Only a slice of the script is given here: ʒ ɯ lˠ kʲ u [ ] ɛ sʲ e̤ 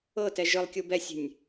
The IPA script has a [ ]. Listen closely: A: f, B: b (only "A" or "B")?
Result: B